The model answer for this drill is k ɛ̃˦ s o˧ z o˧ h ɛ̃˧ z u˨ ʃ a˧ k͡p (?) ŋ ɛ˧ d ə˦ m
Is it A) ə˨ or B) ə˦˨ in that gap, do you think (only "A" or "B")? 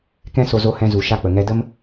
A